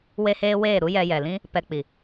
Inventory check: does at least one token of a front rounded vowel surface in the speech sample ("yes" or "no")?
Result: no